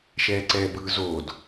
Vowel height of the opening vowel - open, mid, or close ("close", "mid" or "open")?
mid